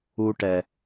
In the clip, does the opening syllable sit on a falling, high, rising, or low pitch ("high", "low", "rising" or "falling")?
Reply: high